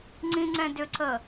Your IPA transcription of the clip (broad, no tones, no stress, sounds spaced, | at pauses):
ŋ͡ǀ ĩ ŋ͡ǀ ɛ̃ d ʏ ǀ ə